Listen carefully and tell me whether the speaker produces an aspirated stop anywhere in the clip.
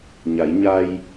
no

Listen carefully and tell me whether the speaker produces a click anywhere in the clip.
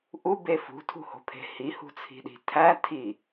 no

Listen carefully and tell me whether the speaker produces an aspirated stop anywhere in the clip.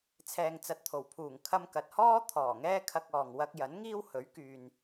yes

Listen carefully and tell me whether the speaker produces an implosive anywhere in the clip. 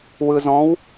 no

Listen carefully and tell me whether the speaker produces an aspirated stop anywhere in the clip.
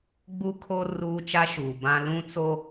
yes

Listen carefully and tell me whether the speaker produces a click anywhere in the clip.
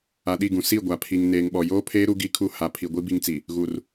no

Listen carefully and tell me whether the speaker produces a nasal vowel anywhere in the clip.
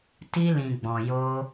yes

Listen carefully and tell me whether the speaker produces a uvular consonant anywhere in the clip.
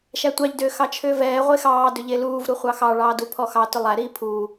yes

